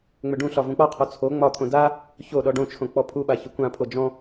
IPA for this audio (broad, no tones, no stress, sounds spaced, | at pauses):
ŋ͡m ʏ ɖ ũ ɬ ɒ v ũ k͡p ɒ qʰ ɔ t͡sʰ o ŋ͡m ɒ t̪ʰ õ d a | ç o ɗ ɔ ɖ õ t͡ʃʰ õ k͡p ɔ pʰ u ɓ a ç ʏ kʷ ã pʰ o d͡ʒ ɔ̃